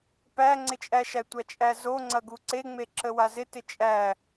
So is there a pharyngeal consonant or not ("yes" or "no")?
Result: no